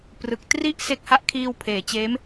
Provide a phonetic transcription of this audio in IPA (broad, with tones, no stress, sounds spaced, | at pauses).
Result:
p r ɯ˨˩ k̚ t r i˥˩ ʔ s e˦˥ k̚ h a˦˥ ʔ kʰ iː˧ w pʰ eː˩˦ t͡ɕ eː˦˥ m